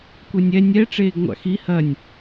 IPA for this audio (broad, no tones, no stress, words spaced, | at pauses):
kʷɛnʲɛ nʲɛ ʈ͡ʂeːɡŋʷa̰xi hɐnʲ